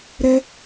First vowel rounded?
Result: no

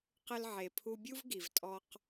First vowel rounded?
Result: no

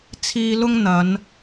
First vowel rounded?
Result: no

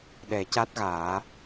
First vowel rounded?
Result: no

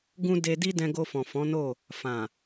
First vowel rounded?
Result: yes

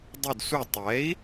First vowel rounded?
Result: yes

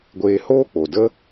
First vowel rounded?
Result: no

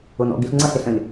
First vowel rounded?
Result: yes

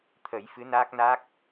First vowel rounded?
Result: no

